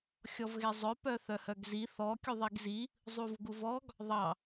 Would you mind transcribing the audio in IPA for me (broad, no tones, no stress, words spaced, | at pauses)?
xʲɔvɣezˤœ pœθœhœɡzi θɔ kʲuðˤiɡzi | zˤuvɡuvɔɡ | ðˤɑ